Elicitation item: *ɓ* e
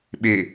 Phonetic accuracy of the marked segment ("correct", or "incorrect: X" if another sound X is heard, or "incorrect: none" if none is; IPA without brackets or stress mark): correct